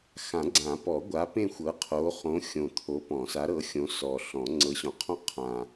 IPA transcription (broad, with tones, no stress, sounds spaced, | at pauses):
x ã˨˩˦ ɡ͡ǀ ã˨˩˦ p ɔ˨˩˦ ɡʷ a˨˦ p ẽ˦˨ xʷ ɤ˨˦ qʰ o˨˦ χ õ˨˦ xʲ õ˨˩ t̪ʰ o˨˦ p ɔ̃˨˩˦ s a˨˦ ɾ ɤ˨˦ xʲ õ˨˦ s ɔ˨˩ ɬ ɔ̃˨˩˦ ŋ͡ǀ ɤ˨˦ ɕ ɔ̃˨˩˦ qʰ ɔ̃˦˨ qʰ ã˨˩